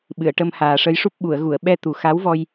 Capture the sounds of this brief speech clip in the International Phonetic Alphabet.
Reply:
ɓ ɨ˨˩˨ ə̯ ʈ ə˧ m h aː˨˩ ʂ ə˧˥ j ʂ u˦˥ p̚ ɓ u˨˩˨ ə̯ ɣ u˨˩˨ ə̯ ɓ ɛ˧ t̪ u˨˩ x a˧˥ w v ɔ˧ j

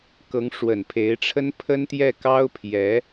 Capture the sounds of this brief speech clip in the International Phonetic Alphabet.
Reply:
k ɤ˧˥ ŋ ʂ w ə˨˩ n pʰ e˧˥ ɪ̯ ʈ͡ʂʰ ə˥ n pʰ ə˥ n t̪ j ɛ˥˩ k ɑ˥ ʊ̯ pʰ j ɛ˧˥

